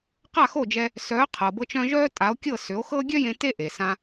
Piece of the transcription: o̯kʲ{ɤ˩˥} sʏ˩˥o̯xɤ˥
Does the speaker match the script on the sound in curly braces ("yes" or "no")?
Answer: no